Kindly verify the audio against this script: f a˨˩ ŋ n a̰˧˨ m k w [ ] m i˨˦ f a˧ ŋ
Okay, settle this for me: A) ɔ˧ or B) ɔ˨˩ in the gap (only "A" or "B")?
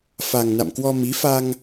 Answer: A